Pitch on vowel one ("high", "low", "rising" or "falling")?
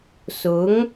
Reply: rising